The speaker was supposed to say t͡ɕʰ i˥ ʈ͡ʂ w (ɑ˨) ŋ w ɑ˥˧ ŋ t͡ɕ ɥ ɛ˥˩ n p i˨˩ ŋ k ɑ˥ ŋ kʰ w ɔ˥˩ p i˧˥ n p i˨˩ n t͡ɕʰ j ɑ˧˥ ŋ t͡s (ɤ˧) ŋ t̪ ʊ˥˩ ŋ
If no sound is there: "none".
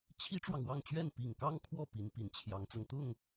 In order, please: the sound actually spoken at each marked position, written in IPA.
ɑ˨, ɤ˧

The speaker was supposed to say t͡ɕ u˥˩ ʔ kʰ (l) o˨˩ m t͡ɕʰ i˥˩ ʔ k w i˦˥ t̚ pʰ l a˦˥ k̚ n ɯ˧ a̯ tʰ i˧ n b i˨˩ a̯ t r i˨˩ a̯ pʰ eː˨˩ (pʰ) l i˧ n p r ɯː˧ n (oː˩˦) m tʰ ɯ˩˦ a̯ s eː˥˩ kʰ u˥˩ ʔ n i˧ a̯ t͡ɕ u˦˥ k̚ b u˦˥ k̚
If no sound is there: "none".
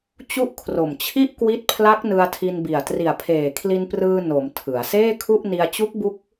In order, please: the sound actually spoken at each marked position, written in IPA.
r, kʰ, o˩˦

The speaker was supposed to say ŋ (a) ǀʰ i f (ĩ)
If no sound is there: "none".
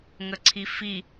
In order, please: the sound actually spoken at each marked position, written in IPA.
ə, i

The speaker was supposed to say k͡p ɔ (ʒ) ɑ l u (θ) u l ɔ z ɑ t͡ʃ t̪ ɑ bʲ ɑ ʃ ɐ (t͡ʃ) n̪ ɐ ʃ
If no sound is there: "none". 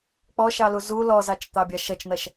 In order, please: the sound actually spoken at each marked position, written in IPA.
ʃ, z, t͡ʃ

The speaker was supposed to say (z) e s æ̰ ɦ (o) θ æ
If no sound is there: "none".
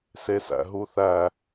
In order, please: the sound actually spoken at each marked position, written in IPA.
s, u

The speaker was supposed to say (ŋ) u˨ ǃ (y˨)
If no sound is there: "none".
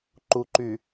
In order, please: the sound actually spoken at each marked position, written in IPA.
ǃ, y˨

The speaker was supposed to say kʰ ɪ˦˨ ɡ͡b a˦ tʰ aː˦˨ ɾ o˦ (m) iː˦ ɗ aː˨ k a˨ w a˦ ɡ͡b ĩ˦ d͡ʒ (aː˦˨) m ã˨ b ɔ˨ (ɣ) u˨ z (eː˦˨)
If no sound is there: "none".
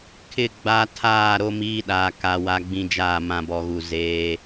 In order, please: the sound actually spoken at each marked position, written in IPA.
m, aː˦˨, ɣ, eː˦

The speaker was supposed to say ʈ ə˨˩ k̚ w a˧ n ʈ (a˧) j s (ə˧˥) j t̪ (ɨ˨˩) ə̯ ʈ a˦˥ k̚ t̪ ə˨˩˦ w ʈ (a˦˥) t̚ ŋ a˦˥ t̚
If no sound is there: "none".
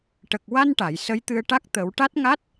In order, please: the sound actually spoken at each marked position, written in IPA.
a˨˩˨, ə˧˥, ɨ˧, a˦˥

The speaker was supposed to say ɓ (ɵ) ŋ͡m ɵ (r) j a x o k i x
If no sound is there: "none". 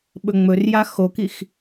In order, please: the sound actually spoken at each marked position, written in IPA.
ɵ, r

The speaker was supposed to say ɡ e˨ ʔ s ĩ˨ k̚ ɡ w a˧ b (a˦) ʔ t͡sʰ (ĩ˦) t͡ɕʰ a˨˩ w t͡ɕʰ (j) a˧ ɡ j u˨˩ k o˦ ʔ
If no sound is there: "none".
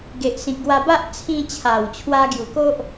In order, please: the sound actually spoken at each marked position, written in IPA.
a˦, ĩ˧, w

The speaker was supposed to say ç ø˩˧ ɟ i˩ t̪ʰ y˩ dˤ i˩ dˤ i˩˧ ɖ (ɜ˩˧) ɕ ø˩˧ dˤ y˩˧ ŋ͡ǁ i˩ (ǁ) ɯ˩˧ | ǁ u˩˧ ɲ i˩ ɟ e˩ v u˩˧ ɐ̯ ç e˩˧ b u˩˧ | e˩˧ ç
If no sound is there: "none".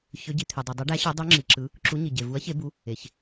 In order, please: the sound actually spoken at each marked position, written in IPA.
æ˩˧, ǁ

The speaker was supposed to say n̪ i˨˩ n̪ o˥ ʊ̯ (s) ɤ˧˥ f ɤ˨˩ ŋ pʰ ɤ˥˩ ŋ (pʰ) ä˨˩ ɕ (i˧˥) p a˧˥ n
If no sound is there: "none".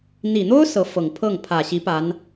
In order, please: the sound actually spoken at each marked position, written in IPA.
s, pʰ, i˧˥

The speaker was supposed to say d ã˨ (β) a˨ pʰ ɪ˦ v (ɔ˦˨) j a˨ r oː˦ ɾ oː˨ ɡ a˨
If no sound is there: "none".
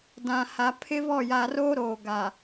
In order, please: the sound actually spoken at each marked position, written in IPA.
h, ɔ˦˨

